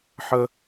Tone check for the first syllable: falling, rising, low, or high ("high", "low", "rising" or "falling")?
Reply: high